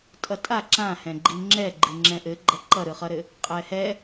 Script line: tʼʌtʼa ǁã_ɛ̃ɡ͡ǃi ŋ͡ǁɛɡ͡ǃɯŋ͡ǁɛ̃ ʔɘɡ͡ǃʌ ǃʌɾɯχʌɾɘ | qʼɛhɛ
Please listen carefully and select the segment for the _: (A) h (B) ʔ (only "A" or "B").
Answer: A